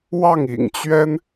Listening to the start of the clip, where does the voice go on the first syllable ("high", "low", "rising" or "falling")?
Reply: falling